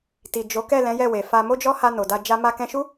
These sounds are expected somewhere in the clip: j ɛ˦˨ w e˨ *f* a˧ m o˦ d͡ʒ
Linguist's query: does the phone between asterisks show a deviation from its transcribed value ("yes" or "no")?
no